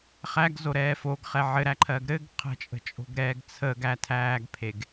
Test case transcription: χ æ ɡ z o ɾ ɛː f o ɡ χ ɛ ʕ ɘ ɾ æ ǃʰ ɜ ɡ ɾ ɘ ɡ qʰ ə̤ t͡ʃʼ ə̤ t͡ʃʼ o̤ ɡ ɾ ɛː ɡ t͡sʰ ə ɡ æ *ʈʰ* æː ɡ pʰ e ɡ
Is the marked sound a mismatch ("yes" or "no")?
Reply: yes